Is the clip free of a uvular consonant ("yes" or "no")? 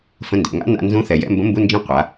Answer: no